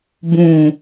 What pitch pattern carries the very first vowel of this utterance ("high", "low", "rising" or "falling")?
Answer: low